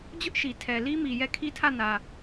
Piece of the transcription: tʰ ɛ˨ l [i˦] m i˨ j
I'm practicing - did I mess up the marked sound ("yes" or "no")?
no